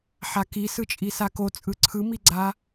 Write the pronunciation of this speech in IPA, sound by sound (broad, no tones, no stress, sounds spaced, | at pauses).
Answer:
ħ a k i s ɯ t͡ʃʼ i s a k o t͡sʼ ɯ ǀʰ ɯ m i ɡ͡ǀ a